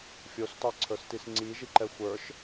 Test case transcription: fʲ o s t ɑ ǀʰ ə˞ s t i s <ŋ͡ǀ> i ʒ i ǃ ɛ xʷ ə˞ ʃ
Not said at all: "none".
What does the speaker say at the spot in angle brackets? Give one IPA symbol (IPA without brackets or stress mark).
ŋ͡ǀ